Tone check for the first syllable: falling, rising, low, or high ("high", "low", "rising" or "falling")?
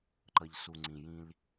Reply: low